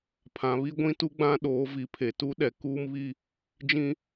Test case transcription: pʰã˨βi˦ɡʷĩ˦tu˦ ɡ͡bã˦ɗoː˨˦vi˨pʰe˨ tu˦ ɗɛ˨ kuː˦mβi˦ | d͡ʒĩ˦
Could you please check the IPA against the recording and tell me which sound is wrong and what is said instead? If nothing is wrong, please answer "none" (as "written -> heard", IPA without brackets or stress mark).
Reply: none